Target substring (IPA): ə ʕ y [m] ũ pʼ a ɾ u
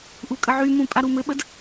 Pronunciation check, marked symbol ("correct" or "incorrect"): correct